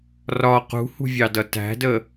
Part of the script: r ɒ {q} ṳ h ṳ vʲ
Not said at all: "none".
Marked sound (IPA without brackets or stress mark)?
q